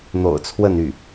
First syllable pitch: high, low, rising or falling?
low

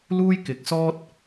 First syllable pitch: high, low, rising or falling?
high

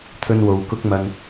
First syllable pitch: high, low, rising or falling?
high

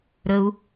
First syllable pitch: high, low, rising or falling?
high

